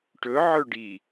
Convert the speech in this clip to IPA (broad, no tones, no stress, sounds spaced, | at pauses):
ʈ ɵ ʕ ɵ ɖ i